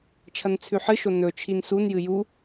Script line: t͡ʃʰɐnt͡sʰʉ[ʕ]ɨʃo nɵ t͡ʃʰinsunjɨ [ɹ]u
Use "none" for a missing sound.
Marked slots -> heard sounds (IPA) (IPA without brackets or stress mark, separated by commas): ħ, j